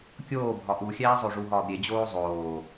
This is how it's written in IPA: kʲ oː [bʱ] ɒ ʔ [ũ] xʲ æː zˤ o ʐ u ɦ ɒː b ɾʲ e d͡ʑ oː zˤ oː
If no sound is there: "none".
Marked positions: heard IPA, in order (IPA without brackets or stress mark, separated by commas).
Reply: bʱ, u